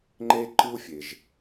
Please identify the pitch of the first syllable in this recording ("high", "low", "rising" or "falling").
high